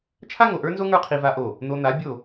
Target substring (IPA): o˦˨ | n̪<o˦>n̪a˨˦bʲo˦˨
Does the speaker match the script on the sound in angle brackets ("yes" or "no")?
no